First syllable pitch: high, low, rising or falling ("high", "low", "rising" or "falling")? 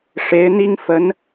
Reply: rising